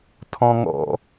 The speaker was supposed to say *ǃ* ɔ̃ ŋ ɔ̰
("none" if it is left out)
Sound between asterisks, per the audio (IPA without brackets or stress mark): tʰ